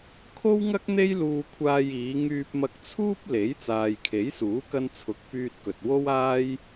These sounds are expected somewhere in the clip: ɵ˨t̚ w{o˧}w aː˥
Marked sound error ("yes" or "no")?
yes